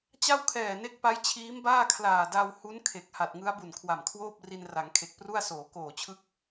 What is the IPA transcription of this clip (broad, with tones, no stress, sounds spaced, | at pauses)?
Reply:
t͡ɕ a˥˩ w kʰ ɛː˨˩ n e˦˥ k̚ p a˦˥ j t͡ɕʰ iː˦˥ m b aː˥˩ kʰ l aː˨˩ d a˧ w h u˦˥ n kʰ e˨˩ k̚ h a˨˩ t̚ ŋ ɯ˦˥ a̯ b u˨˩ n kʰ w a˨˩ m kʰ w oː˥˩ p̚ r i˧ n r a˩˦ ŋ kʰ e˨˩ k̚ p r u˥˩ a̯ s oː˩˦ k oː˨˩ t͡ɕʰ ɯ˦˥ k̚